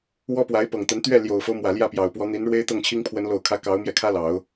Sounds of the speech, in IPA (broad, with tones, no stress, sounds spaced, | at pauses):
w ɔ˥ p w a˧˥ ɪ̯ p ɤ˨˩ ŋ t̪ ə˧˥ n t̪ ɥ ɛ˥˩ l j o˨˩ ʊ̯ f o˦ ʊ̯ m w ä˨˩ l j ä˥˩ p j ɑ˨˩ ʊ̯ p w ɔ˧˥ n̪ i˧˥ n ɻ w e˥ ɪ̯ t̪ ɤ˥˩ ŋ t͡ɕʰ i˥ ŋ pʰ w ə˧˥ n l o˨˩ ʊ̯ kʰ ä˧˥ k ɑ˧˥ ʊ̯ m j ɛ˧ kʰ ä˥ l ɑ˨˩˦ ʊ̯